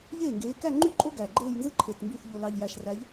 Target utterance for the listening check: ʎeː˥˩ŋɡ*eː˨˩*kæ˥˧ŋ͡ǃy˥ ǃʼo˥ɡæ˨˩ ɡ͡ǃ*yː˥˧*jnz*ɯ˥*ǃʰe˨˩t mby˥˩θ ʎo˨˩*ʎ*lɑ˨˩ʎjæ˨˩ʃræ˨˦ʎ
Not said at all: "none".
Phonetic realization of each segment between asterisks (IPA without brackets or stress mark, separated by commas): eː˨˦, eː˥˧, ɯ˥, none